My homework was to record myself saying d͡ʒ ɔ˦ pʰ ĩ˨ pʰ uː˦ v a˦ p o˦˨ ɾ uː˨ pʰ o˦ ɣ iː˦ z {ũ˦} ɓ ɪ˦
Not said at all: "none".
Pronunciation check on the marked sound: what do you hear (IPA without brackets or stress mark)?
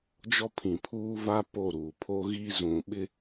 ũ˨